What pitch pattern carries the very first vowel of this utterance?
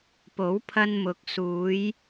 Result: rising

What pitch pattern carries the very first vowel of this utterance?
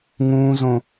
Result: high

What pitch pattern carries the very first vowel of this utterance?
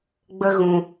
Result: high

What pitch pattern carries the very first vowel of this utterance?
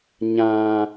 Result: high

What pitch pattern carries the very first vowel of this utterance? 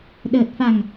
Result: low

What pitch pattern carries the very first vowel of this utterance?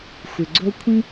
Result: low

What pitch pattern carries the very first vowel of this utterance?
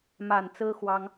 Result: low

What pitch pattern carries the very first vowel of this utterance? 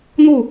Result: falling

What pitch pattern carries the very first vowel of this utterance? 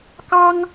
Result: high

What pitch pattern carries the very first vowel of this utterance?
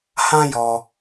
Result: high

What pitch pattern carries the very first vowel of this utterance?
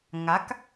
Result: rising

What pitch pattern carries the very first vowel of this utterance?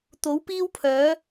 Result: rising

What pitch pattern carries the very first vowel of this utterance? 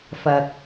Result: low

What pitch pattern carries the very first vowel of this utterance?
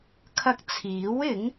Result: high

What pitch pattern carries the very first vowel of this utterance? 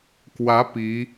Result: rising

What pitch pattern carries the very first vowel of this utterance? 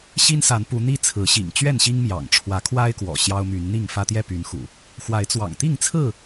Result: high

